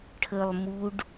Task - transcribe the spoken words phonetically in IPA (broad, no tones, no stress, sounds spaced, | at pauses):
ʈʰ ə lˠ m u ɖ